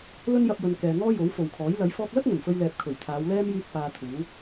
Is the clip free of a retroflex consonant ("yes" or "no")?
yes